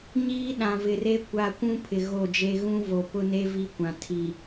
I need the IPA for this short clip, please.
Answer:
ɲiː˦ɗã˨vɪ˨re˦ kʷa˨kʷũ˦ pʰɪ˨ɣo˦˨d͡ʒe˦ ɣũ˦vo˨pʊ˦ ne˦ vi˦kʷã˨ tʰi˨

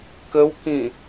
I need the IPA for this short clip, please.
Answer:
kəwkĩ

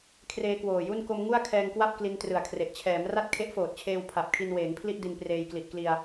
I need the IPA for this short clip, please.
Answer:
kʰreː˧ kwoː˨˩ju˥˩n ko˧mŋu˥˩a̯ kʰɛː˧ŋkwa˥˩p̚ kli˧ntrɯ˨˩a̯kʰre˨˩ʔ t͡ɕʰɛː˩˦m ra˥˩t̚kʰe˦˥ʔfoː˨˩t̚t͡ɕʰeː˧w pʰa˨˩p̚kʰi˧nweː˩˦ŋpʰli˥˩ʔ di˧npreː˧j kli˨˩ʔkli˧a̯

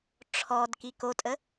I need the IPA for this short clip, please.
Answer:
ʈ͡ʂʰɔd kikotʼə

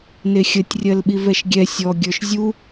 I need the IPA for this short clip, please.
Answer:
nexʲətʲ rʲɜlɓivɛʃɡʲɛ sʲɔ ɡʲə˞ʃzʲu

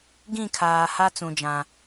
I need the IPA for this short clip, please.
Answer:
ɡĩ˦˨kʰaː˨ha˦ t͡sũ˨d͡ʒã˨

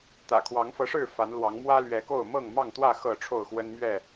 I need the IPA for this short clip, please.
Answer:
t̪ä̰˨˩kʰwɑ˨˦ŋfɤ˨˦ʂɻ̩˥˨ fa˨˦nlwɑ˨˦ŋ mwä˦lɥɛ˨˦ko˥˨ʊ̯ mɤ˥˨ŋmɑ˥˨ŋt̪wä˥˨ xɤ˥˨ʈ͡ʂʰo˥˨ʊ̯xwə˦nmɥɛ˥˨

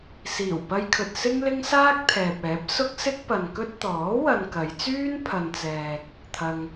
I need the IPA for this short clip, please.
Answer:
siː˨˩wpɐ˧jkʰɵ˨t̚ sɪ˥ŋlɪ˥ŋsaː˥k̚ t̪ʰɛː˨p̚ɛː˨˥p̚ sʊ˥k̚ sɪ˥k̚pɐ˨nkɵ˥t̚ t̪ɔː˨˥wɐ˨n kɐ˨˧jt͡syː˥n pʰɐ˨nt͡sɛː˨k̚ | t̪ʰɐ˧ŋ

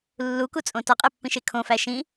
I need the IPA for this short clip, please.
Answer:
lːukut͡sʼõ tɒqʼepːĩʃe kʰõfæ ʃĩ

